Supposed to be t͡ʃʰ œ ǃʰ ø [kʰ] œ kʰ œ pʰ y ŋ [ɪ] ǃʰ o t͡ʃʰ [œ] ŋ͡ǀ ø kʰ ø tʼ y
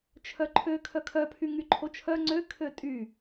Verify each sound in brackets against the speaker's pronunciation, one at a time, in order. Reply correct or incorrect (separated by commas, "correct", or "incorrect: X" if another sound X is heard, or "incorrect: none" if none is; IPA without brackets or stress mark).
correct, incorrect: y, correct